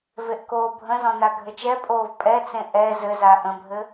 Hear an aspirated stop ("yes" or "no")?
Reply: no